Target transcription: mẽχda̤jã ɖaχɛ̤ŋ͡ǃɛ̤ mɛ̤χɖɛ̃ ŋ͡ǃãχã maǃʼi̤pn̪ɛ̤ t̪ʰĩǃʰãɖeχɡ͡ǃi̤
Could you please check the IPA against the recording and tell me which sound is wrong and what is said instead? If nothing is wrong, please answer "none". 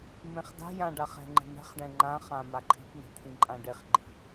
ǃʰ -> ǃʼ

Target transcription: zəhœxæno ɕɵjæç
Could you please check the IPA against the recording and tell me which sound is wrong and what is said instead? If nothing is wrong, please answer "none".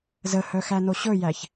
none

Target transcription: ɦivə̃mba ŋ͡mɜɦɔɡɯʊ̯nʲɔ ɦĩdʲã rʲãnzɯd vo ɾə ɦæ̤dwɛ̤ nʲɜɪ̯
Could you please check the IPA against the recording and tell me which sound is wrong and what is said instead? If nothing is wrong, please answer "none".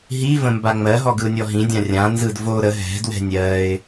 æ̤ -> ɛ̤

